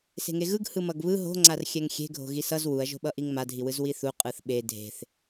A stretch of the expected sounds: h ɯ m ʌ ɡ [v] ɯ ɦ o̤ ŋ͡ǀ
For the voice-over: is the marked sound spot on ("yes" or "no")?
no